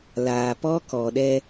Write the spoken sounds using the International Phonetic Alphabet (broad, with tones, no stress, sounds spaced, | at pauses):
l aː˨ p ɔ˦ k ɔ˨ ɗ ɛ˦